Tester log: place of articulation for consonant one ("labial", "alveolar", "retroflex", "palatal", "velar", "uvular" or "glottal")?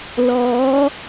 alveolar